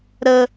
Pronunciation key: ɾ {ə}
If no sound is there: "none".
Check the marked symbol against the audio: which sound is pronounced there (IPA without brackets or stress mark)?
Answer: ə